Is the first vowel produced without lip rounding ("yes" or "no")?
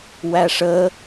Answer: yes